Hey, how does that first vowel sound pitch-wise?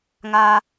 high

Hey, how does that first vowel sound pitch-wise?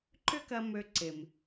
high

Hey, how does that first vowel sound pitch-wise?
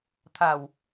low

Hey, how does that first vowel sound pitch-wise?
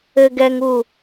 high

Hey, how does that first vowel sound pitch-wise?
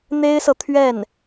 high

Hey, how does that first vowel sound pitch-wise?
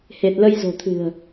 low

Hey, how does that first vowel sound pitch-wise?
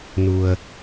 low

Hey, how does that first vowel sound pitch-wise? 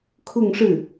falling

